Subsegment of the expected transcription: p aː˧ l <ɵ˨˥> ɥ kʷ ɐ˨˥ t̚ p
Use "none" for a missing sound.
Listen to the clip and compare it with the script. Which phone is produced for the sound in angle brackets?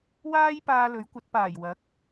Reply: ɵ˨˥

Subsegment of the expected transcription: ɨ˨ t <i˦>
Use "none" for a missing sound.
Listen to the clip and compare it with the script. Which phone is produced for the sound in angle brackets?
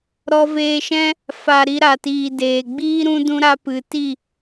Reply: i˦˨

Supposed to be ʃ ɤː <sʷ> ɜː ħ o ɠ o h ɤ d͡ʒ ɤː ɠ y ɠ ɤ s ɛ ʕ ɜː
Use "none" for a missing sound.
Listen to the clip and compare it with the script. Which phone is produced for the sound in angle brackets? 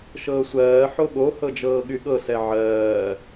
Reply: sʷ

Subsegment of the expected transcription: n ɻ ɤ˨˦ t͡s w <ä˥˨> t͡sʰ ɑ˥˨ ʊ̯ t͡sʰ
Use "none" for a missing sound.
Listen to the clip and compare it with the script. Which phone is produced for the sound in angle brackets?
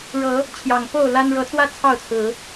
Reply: ä˦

